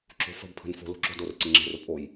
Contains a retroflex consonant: no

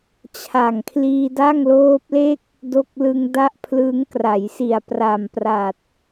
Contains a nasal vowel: no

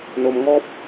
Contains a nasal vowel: no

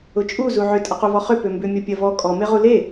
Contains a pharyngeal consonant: yes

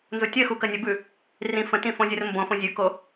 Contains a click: no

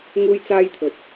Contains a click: no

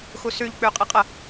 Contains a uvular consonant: yes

